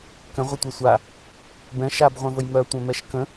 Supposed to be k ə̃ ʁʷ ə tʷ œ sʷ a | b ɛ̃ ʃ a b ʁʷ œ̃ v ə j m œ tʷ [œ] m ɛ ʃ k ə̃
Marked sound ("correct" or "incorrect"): incorrect